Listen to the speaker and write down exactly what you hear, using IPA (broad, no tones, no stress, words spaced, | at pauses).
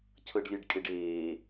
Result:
cʰɤɖlʲɛɖkʼeɖeː